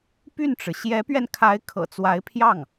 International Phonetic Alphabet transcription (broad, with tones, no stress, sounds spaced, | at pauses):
p y˥˩ n ʈ͡ʂ ɻ̩˩ ɕ j ɛ˧˥ p ɥ ɛ˧ n kʰ a˧˥ ɪ̯ kʰ ɤ̰˨˩ t͡s w a˧˥ ɪ̯ pʰ j ɑ˥˩ ŋ